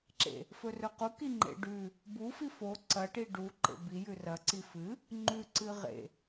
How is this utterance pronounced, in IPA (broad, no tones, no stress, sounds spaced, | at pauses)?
ǁ ḛ | f ɵ r ɵ q u k i ŋ͡ǃ ḛ ɖ ʉ | b u f i f o ǀ ɐ ʈ i ɖ u ǃ ḛ b i j ʉ r ɐ ǀ i f ɨ | ŋ͡ǃ ʉ ǀ ɨ ʁ ḛ